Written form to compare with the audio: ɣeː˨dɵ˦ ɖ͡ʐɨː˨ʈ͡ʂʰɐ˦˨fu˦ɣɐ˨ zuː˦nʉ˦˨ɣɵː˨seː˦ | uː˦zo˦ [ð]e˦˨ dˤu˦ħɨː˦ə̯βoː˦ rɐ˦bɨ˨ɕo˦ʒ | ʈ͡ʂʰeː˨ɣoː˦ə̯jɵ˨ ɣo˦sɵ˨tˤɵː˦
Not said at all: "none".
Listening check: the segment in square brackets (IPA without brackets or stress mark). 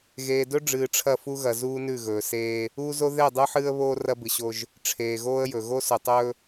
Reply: ð